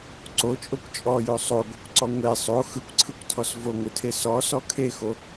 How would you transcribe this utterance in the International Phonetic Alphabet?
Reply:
ǀ o t͡ʃʼ o kʷ t͡ʃʼ ɔ j o sˤ o ɡʷ e kʷ ǀ ɔ ŋʷ e sˤ o x ɯ kʷ ǀʰ ɯ kʷ tʰ ɔ s v o ŋʷ ɯ tʰ e s ɔ s ɔ kʰ e x o

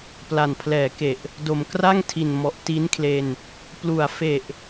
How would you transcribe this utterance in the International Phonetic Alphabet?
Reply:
p l a˨˩ n pʰ l ɛː˩˦ k e˨˩ ʔ | d o˨˩ m k r a˥˩ ŋ tʰ i˨˩ n m ɔ˨˩ ʔ t i˦˥ n kʰ l e˧ n | p l u˩˦ a̯ f e˨˩ ʔ

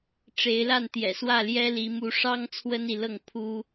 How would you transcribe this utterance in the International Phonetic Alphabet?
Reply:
ʈ͡ʂ e˨˦ ɪ̯ l a˥˨ n t̪ j ɛ̰˨˩ s w ä˥˨ l j ɛ˦ l i˨˦ m u˨˦ ʂ ɑ˦ ŋ t͡sʰ w ə˦ n i˨ l ɤ˥˨ ŋ pʰ u˦

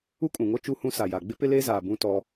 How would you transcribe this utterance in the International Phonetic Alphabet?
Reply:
u˦ kʼ ũ˨ ŋ o˦ t͡ʃ u˦ h ũ˦ s a˨ j a˨ ɡ͡b ɪ˦ p ɪ˦ l eː˦ z aː˨ b ũ˦ t ɔ˦

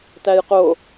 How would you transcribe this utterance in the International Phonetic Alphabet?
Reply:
t æ j q o

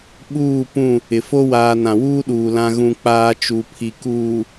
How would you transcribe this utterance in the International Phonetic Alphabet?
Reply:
ɓ uː˦˨ p ũ˦˨ | ɪ˨ f o˦ w aː˨ n ã˨ w uː˦ ɗ uː˨ l ã˦ ɣ ũ˦ k͡p aː˦ t͡ʃ u˨ pʰ i˨ k uː˨

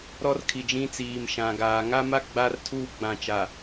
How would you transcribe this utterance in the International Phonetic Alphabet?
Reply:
ɾ ɔ˦ r kʰ i˨ d͡ʒ ĩ˦ t͡s iː˨ m ʃ ã˨ ɡ aː˨ ŋ a˦ m a˦ ɡ͡b a˦ r tʰ u˦ ɡ͡b ã˨ t͡ʃ a˨

